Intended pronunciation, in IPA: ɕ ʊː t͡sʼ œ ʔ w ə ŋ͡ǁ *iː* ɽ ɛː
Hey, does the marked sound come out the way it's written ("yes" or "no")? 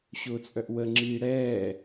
yes